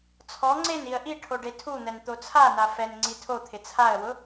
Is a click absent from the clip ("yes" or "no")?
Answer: no